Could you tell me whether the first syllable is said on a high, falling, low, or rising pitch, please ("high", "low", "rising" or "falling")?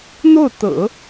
falling